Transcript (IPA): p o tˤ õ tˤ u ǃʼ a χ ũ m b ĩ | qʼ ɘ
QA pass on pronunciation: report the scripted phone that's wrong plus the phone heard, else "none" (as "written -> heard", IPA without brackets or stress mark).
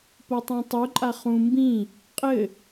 none